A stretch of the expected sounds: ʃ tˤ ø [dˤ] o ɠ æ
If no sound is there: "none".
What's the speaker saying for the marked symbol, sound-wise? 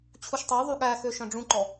ðˤ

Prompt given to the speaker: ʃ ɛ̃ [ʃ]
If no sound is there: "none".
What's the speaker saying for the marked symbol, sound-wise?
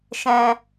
none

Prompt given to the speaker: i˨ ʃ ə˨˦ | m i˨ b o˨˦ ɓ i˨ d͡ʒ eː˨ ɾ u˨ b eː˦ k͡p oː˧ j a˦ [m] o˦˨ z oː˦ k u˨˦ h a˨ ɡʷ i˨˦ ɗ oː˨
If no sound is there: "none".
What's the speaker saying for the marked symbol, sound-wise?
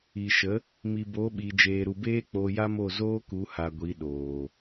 m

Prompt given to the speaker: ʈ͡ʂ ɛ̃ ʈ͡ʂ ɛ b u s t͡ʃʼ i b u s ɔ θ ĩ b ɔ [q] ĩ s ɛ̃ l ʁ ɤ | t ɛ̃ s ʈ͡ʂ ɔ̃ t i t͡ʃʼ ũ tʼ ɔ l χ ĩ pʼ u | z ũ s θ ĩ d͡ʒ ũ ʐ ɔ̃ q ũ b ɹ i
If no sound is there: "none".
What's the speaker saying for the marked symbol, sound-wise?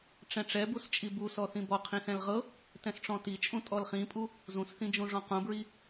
qʰ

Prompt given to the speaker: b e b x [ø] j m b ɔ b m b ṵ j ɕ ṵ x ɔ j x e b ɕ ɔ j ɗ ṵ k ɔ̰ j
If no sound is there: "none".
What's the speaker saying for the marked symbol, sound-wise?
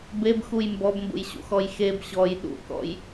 u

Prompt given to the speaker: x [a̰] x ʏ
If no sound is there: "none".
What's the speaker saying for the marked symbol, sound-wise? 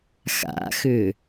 a̰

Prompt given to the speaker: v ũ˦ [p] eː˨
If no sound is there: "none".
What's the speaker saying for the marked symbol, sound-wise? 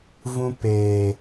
p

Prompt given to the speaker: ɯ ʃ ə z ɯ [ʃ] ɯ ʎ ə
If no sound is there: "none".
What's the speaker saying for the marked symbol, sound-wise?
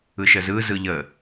z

